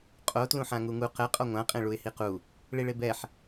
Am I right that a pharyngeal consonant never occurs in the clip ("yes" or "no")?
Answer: no